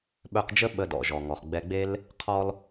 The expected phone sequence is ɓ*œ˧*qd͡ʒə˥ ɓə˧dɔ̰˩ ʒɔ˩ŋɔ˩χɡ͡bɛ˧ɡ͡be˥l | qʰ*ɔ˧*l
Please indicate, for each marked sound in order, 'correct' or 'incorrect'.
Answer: correct, correct

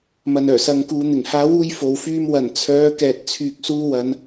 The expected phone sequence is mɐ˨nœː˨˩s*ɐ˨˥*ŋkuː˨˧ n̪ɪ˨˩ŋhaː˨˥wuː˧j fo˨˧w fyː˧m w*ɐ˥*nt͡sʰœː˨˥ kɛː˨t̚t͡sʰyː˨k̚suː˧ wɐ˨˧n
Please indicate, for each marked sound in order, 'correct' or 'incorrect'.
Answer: incorrect: ɐ˨˧, incorrect: ɐ˨˩

